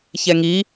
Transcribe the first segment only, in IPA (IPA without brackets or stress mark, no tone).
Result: ç